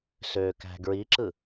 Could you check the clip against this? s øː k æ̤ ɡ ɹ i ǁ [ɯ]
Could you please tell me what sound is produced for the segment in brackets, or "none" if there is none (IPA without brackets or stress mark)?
ɯ